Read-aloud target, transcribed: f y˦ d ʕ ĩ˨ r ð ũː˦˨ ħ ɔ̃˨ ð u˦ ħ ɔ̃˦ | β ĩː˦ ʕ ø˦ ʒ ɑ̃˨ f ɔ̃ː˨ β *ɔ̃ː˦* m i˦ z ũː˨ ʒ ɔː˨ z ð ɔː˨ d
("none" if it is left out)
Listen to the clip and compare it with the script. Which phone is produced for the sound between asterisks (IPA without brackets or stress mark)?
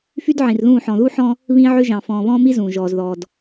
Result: ɔ̃ː˦